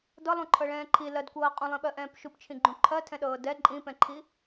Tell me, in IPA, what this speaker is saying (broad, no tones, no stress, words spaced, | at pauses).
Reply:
dɤlˠũǃʰɤɭɛ̃ː ǃʰilɜdkʷɤː qʼũlˠĩɓɜʔɛ̃ːp ʃupt͡ʃʰĩɡ͡ǃũ ǃʰɜtʰɛ̃ɗɤː dɛ ǃʼĩpɛ̃ǃʰi